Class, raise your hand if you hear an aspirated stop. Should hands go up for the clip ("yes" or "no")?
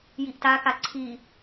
yes